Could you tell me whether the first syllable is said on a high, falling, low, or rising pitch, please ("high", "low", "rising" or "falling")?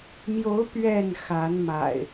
rising